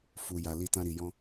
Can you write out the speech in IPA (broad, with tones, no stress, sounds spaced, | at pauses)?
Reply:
f u˨ j a˨ l i˧ t ã˧ ɾ i˨ j ɔ̃˧